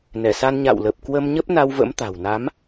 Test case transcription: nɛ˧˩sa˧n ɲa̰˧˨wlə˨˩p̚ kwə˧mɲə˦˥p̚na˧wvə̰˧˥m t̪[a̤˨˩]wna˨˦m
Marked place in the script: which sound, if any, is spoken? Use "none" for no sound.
a̤˨˩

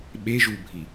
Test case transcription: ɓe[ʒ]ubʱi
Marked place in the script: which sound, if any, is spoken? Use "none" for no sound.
ʒ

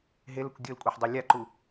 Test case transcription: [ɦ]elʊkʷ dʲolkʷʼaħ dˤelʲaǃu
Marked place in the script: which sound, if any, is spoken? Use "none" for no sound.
ɦ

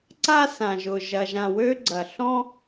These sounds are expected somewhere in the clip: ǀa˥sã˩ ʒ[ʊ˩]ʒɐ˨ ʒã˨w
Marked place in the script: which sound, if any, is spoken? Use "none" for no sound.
ʊ˩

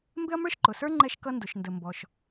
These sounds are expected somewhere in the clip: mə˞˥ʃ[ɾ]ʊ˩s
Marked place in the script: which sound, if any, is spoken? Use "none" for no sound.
ǃ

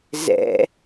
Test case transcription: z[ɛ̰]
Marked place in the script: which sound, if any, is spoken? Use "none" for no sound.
ɛ̰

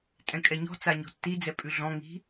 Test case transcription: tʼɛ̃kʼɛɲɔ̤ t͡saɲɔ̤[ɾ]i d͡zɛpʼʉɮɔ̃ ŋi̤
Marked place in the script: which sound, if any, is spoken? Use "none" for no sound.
tː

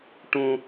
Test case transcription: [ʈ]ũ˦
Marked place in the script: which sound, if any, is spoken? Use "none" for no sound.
ʈ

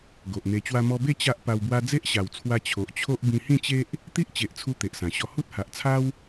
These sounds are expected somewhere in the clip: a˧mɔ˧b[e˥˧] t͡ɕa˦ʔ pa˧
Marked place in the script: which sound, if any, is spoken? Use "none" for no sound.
e˥˧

